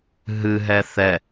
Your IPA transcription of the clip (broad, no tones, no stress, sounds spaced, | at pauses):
ɦ ɨ ɦ ɛ θ ɛ